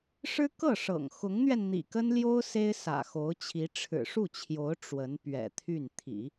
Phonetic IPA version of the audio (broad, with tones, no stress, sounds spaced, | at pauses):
ʂ ɻ̩˥ k ɤ˥˩ ʂ ɤ̰˨˩ ŋ x ʊ˧˥ ŋ n̪ ɥ ɛ˧ n n̪ ḭ˨˩ k ə˥ n l j o˥ ʊ̯ s e˥ ɪ̯ s ä̰˨˩ x o˧˥ ʊ̯ t͡ɕʰ i˧˥ ʈ͡ʂʰ ɻ̩˨˩ ʂ u˥˩ t͡ɕʰ j o˧˥ ʊ̯ ʈ͡ʂ w ə˧˥ n p ɥ ɛ̰˨˩ t̪ʰ y˥˩ n t̪ʰ ḭ˨˩˦